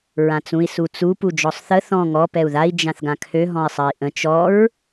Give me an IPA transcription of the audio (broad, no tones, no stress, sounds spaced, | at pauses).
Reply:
ɹ ã t͡s ũ i̯ s u t͡s u p u d͡ʒ ɔ sˤ θ ə θ ɔ̃ ŋ ɔ p ɛ u̯ ð a i̯ d͡ʒ ã θ ɡ ã kʰ ø ɦ ɔ̃ i̯ sˤ ɜ i̯ ʔ ə̃ t͡ʃ ɔ ɹ